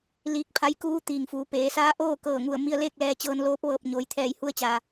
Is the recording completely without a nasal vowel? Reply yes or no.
yes